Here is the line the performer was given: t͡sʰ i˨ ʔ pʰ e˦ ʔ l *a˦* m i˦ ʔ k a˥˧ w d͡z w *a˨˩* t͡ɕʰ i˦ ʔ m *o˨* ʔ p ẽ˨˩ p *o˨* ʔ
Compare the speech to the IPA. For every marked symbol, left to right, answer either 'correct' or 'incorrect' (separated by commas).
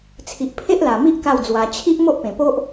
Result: incorrect, incorrect, incorrect, incorrect